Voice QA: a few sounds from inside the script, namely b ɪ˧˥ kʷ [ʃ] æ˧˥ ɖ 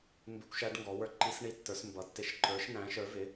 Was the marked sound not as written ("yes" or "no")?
no